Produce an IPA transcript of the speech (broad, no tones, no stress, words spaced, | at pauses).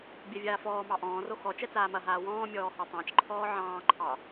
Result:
bʲɛvʲaːfɔːmɑ ʔɔ̃ːro xɔ t͡ʃɛt͡saːmɐɦaː wɔ̃ː mʲɔːhɑtˤɑ̃t͡ʃǃʰɔː ʕɑ̃ːǃʰɑ